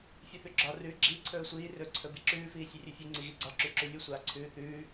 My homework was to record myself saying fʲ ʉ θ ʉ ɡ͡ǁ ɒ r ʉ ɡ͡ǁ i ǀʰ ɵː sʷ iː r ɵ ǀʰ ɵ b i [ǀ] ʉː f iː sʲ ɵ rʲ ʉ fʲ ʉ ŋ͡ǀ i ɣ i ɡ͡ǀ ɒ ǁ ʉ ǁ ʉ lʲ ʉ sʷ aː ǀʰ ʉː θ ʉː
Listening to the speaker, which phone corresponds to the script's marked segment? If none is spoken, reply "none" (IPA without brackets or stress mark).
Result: ǁ